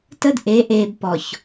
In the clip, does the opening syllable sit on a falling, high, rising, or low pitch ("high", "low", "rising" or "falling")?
high